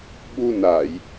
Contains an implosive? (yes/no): yes